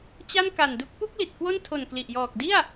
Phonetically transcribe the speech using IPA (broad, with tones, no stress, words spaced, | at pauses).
t͡ɕa˥˩nka˨˩ndu˦˥k̚ pu˥˩k̚ li˨˩t̚kwo˥˩n tʰo˨˩n kli˨˩ʔjɔː˨˩k̚ di˥˩a̯